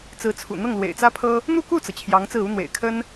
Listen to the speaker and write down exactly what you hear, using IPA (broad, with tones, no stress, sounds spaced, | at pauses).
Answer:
t͡s ɹ̩˧˥ t͡sʰ ṵ˨˩ n̪ ɤ˥˩ ŋ l w ḛ˨˩ ɪ̯ t͡s ä˥ pʰ ɤ˥ | n̪ u˥˧ k u˥˩ t͡s ɤ˩ t͡ɕʰ j ɑ˧˥ ŋ t͡s ɹ̩˥˩ u˥ n̪ w ḛ˨˩ ɪ̯ kʰ ə˥ n